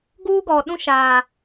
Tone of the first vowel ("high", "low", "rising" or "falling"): high